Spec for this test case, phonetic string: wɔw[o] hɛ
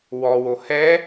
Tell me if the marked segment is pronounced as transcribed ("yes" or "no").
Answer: yes